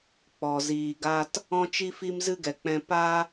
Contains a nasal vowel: yes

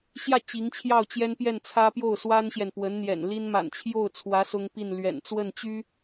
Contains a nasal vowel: no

